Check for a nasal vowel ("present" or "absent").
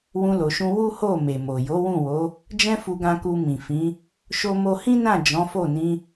present